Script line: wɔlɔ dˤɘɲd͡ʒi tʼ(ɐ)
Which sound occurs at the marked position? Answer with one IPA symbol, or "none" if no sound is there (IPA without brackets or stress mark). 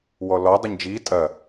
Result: ɐ